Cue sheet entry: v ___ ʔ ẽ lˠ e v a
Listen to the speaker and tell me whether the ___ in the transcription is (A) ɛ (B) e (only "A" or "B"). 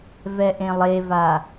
A